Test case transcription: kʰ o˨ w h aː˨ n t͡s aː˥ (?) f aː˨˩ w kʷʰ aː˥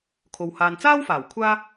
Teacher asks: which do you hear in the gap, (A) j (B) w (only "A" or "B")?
B